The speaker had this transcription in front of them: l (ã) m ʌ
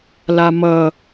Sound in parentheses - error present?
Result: yes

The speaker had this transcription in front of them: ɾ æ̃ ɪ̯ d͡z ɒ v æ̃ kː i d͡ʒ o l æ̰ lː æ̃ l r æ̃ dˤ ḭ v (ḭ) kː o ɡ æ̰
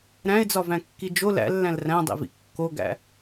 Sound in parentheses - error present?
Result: no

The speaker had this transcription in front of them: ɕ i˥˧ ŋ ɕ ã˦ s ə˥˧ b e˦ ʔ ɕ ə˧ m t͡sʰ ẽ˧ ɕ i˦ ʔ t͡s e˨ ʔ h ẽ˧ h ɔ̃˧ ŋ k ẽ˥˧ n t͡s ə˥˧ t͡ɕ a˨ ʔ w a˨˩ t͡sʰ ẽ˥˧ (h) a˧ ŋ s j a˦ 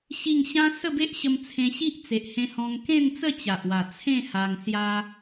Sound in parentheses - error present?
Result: no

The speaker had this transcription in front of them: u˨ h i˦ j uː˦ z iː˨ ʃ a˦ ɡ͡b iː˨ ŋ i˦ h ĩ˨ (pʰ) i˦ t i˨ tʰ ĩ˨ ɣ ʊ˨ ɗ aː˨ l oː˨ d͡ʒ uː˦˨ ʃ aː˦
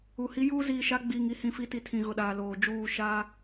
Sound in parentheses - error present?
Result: yes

